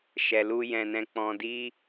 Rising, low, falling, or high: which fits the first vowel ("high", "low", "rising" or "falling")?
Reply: low